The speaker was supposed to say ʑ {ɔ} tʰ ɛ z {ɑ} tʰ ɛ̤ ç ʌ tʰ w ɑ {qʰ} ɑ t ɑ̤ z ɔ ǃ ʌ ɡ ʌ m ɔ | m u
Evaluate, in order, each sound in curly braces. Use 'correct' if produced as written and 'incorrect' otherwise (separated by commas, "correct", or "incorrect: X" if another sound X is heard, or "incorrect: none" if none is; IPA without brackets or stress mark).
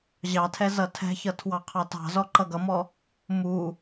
incorrect: ɑ, incorrect: ʌ, correct